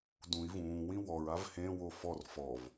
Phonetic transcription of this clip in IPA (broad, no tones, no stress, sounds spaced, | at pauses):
d ũ i̯ v ũː w ĩ w ɔ ɹ a v h ẽ w o f ɔ r f ɔ v